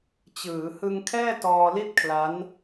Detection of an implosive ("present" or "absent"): absent